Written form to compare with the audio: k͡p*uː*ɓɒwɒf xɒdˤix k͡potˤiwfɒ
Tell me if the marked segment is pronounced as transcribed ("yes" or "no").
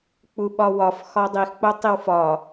no